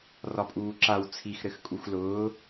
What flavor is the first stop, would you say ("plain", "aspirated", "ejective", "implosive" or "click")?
ejective